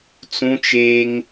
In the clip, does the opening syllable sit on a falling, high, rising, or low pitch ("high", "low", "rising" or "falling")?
high